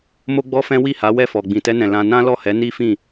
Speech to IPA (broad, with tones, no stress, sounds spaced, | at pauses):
m o˦ ɡ͡b ɔ˦ f ɛ̃˦ w i˦˨ h a˨˦ w ɛ˦˨ f ɔ˨ ɡ͡b ĩ˨ t ɛ˧ n ɛ̃˨ l ã˧ n ã˦ l ɔ˦˨ h ɛ˨˦ n i˦ f ĩ˦˨